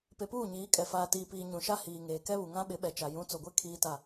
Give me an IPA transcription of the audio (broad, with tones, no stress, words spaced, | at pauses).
pe˨puː˦˨ɲiː˨˦kʼɛ˨ faː˨tiː˨piː˨ ɲũ˨ʃa˦hiː˨ŋeː˨ kɛ˦βu˨ŋã˦ɓɪ˨˦ ɓɛ˨t͡ʃa˨ jũ˨˦t͡so˨ɡʷe˦ kʰiː˦ta˦˨